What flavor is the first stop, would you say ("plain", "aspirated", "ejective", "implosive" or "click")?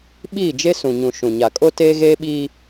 implosive